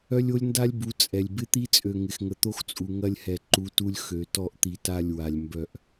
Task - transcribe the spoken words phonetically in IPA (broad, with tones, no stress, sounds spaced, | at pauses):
œ˦ lʲ o˦ lʲ n d a˦ lʲ b u˨˦ t͡sʼ ɛ˨ lʲ b ɪ˦ t̪ i˦ t͡sʼ ø˨ ŋ ɪ˨ x ŋ ə˨ t̪ o˦ x t͡sʼ u˨ ŋ ɐ˦ lʲ h ɛ˨ ǃ u˨˦ t u˦ lʲ x ø˨ t ɔ˦˨ ʔ t̪ i˨ t a˦˨ lʲ w a˨ lʲ m b œ˦˨ ʔ